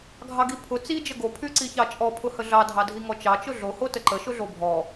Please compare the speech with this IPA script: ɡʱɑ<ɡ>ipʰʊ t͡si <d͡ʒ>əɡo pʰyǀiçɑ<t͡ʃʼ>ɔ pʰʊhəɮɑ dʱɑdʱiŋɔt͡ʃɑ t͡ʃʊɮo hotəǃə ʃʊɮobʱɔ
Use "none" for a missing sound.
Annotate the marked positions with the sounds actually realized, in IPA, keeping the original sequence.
ɡ, d͡ʒ, t͡ʃʼ

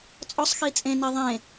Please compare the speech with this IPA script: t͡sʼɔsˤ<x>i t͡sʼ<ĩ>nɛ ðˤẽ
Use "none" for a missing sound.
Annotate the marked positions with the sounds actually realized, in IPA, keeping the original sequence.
x, ẽ

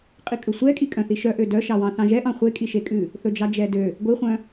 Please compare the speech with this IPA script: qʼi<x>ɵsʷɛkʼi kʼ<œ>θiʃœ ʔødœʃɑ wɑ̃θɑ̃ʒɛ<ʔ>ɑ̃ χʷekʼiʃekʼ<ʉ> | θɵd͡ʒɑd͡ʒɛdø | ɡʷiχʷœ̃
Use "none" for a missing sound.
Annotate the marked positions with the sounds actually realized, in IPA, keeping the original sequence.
kʼ, œ̃, ʔ, ʉ

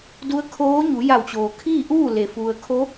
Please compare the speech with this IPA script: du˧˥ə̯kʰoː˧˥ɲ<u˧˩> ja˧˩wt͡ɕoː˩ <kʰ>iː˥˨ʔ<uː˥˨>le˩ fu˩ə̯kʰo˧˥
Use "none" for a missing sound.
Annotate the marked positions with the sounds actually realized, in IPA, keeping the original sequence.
u˩˧, kʰ, uː˥˨

